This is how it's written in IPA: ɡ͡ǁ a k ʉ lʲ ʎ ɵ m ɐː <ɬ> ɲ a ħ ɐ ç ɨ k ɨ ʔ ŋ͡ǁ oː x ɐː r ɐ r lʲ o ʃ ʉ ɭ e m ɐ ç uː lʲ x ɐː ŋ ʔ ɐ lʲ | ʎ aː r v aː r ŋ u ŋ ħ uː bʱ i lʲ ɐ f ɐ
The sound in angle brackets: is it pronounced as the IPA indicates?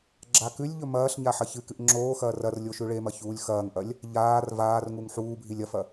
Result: yes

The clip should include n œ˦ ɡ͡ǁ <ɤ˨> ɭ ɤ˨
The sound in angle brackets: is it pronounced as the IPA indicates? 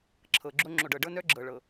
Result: yes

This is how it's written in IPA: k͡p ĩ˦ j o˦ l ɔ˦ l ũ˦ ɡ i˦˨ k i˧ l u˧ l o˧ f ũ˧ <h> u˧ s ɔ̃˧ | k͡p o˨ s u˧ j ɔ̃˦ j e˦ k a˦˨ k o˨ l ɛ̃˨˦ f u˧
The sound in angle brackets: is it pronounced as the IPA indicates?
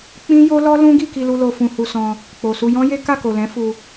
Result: yes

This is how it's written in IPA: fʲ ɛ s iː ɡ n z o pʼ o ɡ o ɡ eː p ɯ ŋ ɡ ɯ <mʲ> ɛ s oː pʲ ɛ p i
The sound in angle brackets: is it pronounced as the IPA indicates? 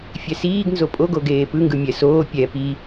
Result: yes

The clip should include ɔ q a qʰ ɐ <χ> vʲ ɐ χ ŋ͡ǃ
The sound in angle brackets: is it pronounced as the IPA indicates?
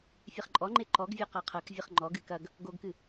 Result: no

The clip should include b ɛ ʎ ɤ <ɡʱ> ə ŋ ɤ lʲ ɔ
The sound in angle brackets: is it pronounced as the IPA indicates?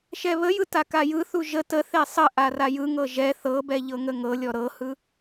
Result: no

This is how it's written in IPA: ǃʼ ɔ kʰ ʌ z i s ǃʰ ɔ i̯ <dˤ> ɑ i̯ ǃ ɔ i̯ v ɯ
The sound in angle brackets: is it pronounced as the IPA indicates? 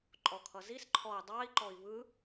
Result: yes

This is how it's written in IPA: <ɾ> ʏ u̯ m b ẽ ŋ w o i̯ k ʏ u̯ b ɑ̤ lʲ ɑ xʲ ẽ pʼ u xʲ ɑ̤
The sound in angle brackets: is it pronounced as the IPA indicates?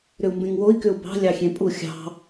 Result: yes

